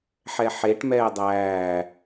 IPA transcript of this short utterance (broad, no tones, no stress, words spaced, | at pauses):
ħɛħeʈ mɛːdˤæː